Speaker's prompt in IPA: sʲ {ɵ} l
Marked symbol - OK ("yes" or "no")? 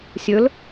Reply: yes